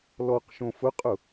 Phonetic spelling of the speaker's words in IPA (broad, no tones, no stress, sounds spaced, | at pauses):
l ɔ q ʃ õ f ʊ qʼ ʊ